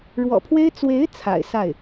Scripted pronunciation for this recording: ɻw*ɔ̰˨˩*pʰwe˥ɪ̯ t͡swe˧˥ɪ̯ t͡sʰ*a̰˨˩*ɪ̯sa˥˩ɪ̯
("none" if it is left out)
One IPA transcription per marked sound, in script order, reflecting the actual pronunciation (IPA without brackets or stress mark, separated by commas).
ɔ̰˨˩, a̰˨˩